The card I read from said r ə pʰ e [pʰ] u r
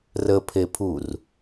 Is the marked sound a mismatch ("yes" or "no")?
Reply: no